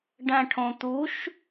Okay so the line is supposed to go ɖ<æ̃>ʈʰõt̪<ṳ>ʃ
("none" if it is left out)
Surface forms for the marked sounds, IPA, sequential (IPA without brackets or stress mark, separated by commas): æ̃, u